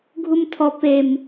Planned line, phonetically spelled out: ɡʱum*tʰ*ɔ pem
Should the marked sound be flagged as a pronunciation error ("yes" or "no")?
no